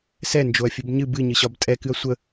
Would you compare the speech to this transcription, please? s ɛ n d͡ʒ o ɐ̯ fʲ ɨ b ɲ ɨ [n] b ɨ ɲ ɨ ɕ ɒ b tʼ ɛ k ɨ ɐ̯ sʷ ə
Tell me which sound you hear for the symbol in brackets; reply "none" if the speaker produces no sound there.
none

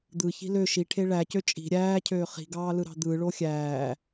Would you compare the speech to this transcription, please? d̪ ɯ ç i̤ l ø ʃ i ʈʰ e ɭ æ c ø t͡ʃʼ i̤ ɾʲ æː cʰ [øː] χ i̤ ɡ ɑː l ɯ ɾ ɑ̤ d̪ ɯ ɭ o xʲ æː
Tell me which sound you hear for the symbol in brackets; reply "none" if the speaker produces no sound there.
øː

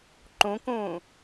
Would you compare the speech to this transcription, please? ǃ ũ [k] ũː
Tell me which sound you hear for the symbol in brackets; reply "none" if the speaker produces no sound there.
k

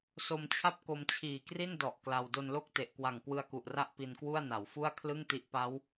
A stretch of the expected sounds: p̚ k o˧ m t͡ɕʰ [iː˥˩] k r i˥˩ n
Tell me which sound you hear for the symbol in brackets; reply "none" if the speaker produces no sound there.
iː˨˩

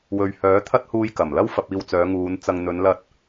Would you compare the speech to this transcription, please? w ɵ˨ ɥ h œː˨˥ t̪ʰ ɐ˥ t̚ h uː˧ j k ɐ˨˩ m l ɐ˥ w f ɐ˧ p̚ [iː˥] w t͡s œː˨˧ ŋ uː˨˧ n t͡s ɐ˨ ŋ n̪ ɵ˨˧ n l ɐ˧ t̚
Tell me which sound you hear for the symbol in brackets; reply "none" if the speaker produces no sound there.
iː˧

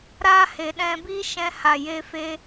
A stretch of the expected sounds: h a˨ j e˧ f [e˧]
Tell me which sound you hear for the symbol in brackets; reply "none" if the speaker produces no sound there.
e˧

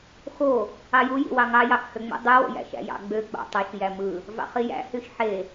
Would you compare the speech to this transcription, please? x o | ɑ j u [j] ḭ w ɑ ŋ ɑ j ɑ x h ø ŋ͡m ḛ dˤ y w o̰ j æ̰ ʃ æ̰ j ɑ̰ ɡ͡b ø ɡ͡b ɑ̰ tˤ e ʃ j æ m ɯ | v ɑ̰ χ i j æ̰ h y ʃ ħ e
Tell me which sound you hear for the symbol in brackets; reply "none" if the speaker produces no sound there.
j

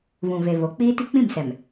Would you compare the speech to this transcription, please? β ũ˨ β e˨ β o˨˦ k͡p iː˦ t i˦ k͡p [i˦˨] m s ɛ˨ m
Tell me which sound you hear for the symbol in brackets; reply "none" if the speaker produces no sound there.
ĩ˦˨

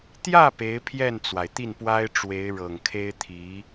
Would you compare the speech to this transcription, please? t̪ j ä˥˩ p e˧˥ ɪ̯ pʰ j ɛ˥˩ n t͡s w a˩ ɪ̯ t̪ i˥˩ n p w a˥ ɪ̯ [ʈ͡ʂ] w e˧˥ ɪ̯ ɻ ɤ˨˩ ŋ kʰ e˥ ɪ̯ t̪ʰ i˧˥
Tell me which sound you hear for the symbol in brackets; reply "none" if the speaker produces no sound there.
ʈ͡ʂ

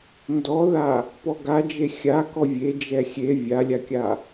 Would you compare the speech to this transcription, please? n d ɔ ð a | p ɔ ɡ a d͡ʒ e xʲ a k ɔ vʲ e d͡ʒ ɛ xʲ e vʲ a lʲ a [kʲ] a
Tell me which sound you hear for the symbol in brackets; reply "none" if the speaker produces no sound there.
kʲ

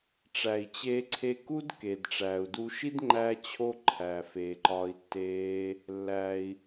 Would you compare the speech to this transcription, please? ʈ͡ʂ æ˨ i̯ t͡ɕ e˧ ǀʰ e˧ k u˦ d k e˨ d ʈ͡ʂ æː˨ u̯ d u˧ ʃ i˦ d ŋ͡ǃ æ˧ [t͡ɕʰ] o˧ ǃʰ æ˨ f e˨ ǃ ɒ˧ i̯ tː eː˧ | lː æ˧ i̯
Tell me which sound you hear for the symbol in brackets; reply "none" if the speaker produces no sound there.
t͡ɕʰ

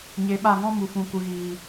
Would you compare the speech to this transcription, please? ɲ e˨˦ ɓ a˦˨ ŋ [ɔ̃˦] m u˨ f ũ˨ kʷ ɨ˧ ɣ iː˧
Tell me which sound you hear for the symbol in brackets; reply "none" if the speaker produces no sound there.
ɔ̃˦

